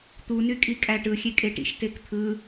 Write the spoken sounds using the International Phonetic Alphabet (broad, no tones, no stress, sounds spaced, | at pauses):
t̪ u n y kʼ i kʼ æ ʈ ɯ xʲ e kʼ e ʈ ḭ ʃ t e k t̪ʰ ɯ